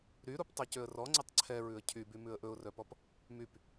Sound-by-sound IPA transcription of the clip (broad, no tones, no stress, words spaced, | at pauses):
ɾyɾup tˤecøə̯rɔŋ͡ǀɛtˤ ǀʰɛɹʉə̯ cʰyby mʉə̯ʔɵʊ̯rœpɔp | myp